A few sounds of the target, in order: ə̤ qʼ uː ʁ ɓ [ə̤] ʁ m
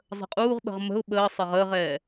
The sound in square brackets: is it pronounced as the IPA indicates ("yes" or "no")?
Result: yes